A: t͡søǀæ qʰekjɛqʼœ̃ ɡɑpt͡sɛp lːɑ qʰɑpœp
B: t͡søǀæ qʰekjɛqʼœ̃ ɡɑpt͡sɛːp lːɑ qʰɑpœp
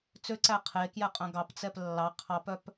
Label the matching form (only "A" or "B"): A